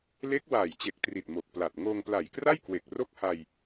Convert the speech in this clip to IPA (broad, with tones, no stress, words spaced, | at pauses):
le˦˥k̚waː˨˩jt͡ɕe˨˩k̚tri˨˩t̚ mo˨˩k̚pla˨˩t̚ ŋoː˧ŋpla˨˩jkra˥˩jkwe˨˩k̚ ro˥˩k̚ha˧j